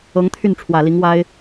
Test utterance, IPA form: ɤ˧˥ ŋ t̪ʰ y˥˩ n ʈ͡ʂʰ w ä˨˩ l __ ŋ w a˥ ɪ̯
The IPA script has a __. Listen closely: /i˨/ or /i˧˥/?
i˧˥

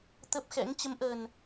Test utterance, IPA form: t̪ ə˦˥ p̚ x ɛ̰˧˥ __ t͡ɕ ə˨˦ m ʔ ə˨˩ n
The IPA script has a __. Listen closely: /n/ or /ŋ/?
ŋ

